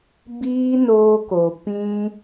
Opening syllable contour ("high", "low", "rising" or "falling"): high